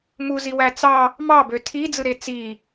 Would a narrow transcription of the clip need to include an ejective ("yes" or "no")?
no